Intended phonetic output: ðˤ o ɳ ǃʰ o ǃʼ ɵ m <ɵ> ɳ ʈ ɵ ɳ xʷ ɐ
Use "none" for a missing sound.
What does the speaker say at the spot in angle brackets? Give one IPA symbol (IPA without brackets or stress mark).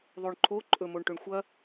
o